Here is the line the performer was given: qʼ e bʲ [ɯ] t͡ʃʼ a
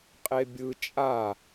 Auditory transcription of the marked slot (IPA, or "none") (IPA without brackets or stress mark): ɯ